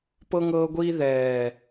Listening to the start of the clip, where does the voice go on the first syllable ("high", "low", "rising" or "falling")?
high